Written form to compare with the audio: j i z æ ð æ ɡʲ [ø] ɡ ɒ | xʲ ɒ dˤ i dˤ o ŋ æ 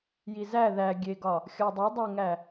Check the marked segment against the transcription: incorrect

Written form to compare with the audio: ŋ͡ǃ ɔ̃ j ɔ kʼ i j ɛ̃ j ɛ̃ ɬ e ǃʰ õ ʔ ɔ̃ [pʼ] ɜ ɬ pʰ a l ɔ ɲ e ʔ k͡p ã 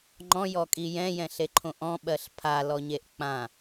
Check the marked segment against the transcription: incorrect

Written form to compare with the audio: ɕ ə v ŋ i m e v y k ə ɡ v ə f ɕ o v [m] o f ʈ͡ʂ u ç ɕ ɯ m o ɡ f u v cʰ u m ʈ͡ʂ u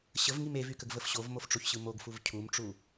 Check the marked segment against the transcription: correct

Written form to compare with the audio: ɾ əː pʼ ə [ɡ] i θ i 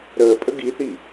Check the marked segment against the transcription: correct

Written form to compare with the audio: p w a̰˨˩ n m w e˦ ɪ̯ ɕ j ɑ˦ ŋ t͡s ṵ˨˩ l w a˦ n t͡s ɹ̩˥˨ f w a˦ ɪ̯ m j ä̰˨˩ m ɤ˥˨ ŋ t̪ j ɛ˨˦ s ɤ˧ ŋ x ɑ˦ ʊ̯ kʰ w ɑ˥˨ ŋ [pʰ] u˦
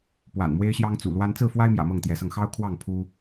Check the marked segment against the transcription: correct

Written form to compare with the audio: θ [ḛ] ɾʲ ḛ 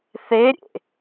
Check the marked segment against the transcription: incorrect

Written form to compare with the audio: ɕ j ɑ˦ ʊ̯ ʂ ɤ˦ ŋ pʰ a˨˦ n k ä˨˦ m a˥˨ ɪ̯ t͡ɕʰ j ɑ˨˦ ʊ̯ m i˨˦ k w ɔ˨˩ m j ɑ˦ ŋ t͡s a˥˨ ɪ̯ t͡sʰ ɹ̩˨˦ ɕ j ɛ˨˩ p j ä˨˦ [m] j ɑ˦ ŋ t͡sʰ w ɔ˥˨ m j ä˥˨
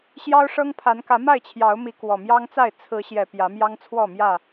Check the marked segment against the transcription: correct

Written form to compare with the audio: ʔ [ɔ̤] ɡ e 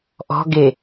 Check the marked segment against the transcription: correct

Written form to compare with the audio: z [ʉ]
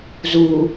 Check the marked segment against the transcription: incorrect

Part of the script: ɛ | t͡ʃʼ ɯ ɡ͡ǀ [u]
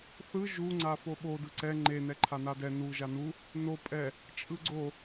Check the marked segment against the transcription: incorrect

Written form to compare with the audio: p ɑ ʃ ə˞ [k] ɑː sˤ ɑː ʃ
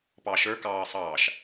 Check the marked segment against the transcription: correct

